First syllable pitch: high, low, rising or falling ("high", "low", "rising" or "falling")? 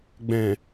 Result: low